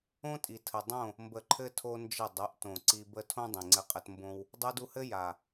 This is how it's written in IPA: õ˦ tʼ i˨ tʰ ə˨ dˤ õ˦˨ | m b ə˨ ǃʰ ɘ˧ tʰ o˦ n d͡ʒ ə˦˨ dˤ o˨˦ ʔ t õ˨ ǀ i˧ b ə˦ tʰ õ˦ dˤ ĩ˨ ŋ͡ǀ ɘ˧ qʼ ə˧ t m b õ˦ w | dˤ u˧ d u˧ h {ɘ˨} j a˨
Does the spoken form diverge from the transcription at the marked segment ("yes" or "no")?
yes